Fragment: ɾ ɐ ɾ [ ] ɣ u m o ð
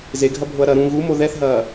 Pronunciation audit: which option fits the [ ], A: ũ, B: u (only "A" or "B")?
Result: A